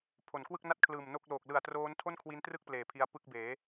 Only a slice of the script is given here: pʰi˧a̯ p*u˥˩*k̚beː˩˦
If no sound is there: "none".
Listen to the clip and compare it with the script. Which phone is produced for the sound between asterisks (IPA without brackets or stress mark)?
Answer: ɯ˥˩